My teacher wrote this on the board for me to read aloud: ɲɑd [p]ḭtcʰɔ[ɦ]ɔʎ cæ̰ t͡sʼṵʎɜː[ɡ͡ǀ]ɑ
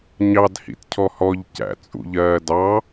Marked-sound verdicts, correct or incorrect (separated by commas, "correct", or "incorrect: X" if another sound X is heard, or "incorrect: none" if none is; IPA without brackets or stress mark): incorrect: h, incorrect: h, incorrect: d